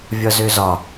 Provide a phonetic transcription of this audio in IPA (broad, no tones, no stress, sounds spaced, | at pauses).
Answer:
vʲ ɒ z ø z ɒ